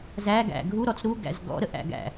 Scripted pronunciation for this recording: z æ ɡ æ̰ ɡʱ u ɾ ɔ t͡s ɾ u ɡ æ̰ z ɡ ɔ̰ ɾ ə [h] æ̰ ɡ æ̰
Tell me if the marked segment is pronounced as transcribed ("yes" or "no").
no